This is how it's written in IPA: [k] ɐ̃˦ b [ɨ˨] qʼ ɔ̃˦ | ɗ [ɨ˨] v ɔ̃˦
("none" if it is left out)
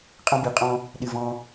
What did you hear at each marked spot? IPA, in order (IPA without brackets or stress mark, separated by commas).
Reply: qʼ, i˨, ɨ˨